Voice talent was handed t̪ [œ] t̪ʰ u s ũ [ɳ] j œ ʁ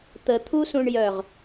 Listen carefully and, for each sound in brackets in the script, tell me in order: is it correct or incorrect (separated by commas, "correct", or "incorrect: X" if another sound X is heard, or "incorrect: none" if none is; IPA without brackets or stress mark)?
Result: incorrect: ə, correct